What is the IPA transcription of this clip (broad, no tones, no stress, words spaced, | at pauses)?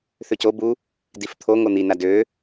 θøco bu | dift̪ʰo ŋon̪i nadø